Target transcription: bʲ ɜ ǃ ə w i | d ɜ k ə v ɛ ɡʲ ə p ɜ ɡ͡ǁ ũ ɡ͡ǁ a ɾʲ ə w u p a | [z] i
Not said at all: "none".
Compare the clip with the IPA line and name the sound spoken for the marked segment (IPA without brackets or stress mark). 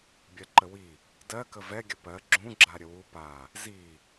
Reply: z